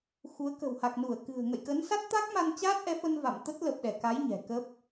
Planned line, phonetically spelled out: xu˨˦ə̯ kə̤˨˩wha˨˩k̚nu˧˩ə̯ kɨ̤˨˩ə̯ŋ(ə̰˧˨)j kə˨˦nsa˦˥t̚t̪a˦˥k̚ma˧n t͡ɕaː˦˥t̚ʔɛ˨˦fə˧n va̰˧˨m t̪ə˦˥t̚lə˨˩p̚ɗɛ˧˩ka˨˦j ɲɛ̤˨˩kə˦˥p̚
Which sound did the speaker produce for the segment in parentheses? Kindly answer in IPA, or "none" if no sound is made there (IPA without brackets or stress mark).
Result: ə̰˧˨